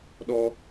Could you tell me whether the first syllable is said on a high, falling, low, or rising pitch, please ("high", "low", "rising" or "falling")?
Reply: high